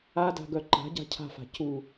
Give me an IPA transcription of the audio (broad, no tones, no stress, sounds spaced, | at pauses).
a d a̤ ɡ œ ǃ a̤ ɟ a̤ cʰ a̤ f a̤ c u